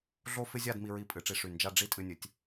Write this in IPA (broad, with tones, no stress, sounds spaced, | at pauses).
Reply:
ɮ o˥ f ɪ˥ zʲ a˥˧ d m i˧ ɹ i˧ pʼ ɨ˩˧ ʈ͡ʂ i˧˩ ʂ y˧˩ n d͡ʒ a˧ ɖ͡ʐ i˥˧ tʼ ɨ˧ nʲ ɨ˩˧ tʲ